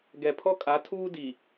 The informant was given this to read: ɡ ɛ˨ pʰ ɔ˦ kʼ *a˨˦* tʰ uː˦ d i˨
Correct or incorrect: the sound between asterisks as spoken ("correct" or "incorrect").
correct